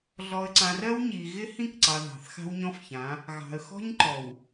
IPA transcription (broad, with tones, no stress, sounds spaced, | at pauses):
ɮ ɔ˨ ə̯ ǀ ã˨ r ɜ˦ w ɲ i˨ ɣ ɪ˦ h ĩ˦˨ k ǀ ɑ˨ ð ɑ̤˨ θ x a̤˦ w ɲ ɔ̃˦ f ç ã˨˦ | ɣ ɑ̤˨ ə̯ x ɔ̤˦ ɲ ǃ ɔ˨ w